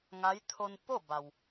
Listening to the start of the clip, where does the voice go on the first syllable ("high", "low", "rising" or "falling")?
rising